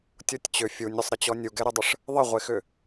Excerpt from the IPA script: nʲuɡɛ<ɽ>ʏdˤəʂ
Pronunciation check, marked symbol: incorrect: ɾ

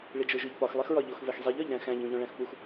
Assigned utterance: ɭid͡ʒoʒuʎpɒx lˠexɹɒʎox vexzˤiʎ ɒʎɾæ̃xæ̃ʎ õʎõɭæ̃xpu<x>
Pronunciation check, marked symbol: correct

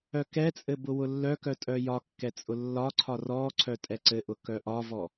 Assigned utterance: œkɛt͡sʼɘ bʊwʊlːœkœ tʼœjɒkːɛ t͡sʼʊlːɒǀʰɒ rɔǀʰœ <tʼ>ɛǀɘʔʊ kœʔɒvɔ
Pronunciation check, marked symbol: correct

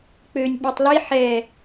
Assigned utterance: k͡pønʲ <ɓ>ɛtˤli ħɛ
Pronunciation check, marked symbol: correct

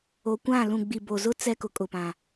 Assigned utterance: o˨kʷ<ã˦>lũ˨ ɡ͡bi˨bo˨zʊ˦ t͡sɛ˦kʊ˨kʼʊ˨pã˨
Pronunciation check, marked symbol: incorrect: ã˦˨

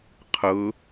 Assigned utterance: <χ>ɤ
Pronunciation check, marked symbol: incorrect: qʰ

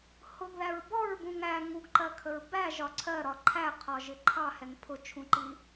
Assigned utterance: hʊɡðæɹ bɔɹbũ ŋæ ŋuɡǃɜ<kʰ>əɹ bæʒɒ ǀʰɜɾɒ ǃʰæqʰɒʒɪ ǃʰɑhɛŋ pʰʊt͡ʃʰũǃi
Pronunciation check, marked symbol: correct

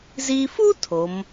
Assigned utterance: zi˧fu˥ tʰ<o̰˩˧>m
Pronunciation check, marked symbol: incorrect: o˩˧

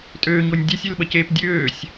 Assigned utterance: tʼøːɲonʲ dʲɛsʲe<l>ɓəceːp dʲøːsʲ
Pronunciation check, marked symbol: correct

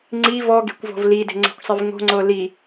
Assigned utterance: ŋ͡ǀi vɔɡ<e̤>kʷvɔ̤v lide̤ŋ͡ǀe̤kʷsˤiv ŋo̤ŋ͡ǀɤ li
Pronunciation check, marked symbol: correct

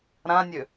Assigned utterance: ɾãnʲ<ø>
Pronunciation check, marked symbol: correct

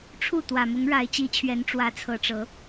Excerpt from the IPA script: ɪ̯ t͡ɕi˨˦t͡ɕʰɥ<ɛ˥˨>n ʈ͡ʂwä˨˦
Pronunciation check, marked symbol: incorrect: ɛ˨˦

